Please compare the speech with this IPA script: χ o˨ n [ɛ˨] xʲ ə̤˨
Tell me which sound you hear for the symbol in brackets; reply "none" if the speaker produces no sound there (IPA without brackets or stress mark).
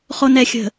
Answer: ɛ˨